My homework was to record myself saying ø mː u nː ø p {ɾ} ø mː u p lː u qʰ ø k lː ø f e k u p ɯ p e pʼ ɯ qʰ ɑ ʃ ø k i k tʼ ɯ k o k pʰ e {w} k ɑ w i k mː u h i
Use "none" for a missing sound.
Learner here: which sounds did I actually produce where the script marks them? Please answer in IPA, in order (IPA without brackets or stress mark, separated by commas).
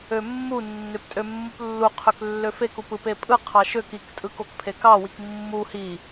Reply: tʼ, none